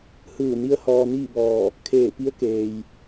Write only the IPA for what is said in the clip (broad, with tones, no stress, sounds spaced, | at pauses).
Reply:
h ɯː˧˩ n i˧˥ ə̯ h ɔː˧ n iː˥˨ b ɔː˧˩ | kʰ eː˧˩ p i˧˥ ə̯ k eː˩ j